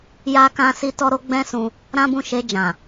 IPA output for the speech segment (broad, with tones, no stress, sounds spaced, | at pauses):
j a˦ k ã˦ s i˦ t ɔ˦ ɾ o˦ ɡ͡b ɛ̃˦ s ũ˧ | ɾ ã˦ b ũ˦˨ ʃ e˧ d͡ʒ ã˨